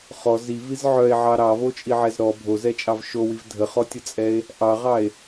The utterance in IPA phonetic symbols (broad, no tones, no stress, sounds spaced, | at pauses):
χ ɔ z i v i z ʕ œ e̯ ʕ ɑ ɾ ɑ v o t͡ʃʼ i ʕ ɛ z ɾ ɔ bʱ o z ɛ t͡ʃʼ ɑ v ʃ o w i v dʱ ə χ ɔ tʲ ə t͡sʼ ɛ e̯ | ʔ ɑ ʁ ɑ e̯